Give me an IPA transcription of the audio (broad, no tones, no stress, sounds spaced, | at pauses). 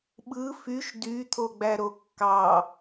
ɓ ɯ f y ʃ d y t̪ʰ o ɡ͡b æ ɾ o kː ɑ